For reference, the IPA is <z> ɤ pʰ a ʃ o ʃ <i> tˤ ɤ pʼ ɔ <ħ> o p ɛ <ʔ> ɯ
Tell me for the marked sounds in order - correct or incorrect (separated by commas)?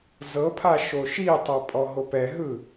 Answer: correct, correct, incorrect, incorrect